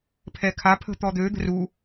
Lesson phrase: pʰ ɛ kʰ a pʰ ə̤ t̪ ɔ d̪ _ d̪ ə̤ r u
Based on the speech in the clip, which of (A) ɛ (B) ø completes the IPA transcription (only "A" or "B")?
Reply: B